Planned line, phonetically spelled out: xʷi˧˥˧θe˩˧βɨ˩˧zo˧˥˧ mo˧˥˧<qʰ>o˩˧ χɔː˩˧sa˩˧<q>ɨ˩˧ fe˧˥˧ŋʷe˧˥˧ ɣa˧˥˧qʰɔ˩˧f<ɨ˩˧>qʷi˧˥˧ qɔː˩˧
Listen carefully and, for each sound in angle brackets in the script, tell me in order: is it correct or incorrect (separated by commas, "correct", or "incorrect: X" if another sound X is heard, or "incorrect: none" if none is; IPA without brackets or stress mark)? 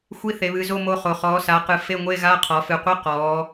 incorrect: χ, correct, correct